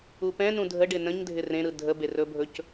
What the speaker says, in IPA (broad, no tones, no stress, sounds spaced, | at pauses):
u p ɛ̃ n ũ dʱ ə ɖ ɪ n ə̃ ɲ dʱ ɪ r ẽ ɾ ɯ dʱ ə b e r ɵ bʱ ɵ c